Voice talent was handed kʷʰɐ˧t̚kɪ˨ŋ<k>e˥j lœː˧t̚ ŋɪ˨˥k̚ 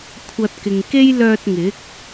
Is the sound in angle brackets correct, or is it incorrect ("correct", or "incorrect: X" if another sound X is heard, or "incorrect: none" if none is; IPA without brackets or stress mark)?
correct